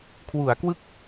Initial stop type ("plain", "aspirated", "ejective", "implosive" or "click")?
aspirated